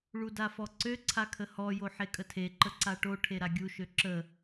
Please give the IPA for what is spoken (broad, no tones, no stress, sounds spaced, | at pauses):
ɭ u d a f ɔ ǀ ø ǀʰ a kʰ ə h ɔ j o ħ e kʼ ə tʰ e ǃ ə ǀ a ʈ o ʈʰ e ɾ a ɡʲ u ʃ ø ǁ ə